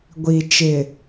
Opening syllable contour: low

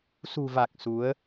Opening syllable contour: low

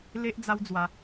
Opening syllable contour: high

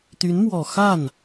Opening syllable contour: rising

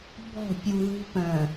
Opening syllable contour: falling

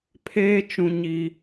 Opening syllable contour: high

